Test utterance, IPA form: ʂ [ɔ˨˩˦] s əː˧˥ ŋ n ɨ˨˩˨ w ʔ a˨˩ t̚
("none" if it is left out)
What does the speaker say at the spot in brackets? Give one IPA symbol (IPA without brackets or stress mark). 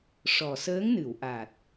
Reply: ɔ˨˩